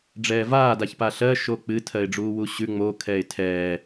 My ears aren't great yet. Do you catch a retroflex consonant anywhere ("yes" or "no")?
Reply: yes